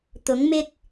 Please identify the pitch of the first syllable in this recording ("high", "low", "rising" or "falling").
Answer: rising